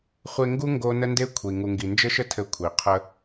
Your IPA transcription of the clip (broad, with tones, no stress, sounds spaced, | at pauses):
χʷ e˧ ŋ ɡ u˦ ŋ ɡ o˧ n ə˦ n d e˦ kʷʰ i˨ ŋ u˨ ŋ ɡ i˨ n d͡ʒ ɘ˦ ʃ ə˦ tʰ ɘ˧ kʷʰ i˨ qʰ ə˦